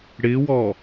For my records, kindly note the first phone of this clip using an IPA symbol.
ɽ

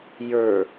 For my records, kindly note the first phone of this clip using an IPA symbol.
j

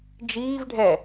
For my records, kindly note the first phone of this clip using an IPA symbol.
d͡ʒ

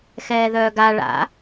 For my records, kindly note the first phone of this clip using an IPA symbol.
x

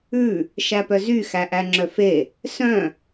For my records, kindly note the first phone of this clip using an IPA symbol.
ʉ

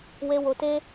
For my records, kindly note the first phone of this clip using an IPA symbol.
w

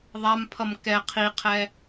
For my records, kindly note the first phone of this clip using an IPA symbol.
ðˤ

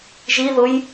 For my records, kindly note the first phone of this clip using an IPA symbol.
ʒ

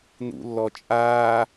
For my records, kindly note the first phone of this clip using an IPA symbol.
n̪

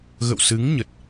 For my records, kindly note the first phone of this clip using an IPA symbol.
ɣ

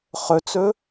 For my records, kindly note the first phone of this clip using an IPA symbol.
χ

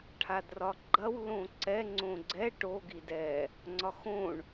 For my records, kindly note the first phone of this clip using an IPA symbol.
ʈʰ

